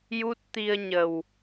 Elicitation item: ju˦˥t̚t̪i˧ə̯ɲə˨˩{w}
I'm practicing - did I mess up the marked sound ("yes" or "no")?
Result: no